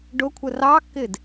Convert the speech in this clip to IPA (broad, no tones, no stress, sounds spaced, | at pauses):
ɖ ʊ kʷʰ ə r ɑ kː ɪ d